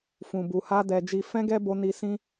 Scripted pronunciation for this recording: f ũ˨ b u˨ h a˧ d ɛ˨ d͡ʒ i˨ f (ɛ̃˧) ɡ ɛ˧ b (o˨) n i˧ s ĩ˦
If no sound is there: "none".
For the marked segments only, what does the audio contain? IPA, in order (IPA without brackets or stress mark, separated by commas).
ɛ̃˧, o˧